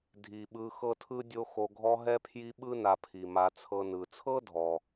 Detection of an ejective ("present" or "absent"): absent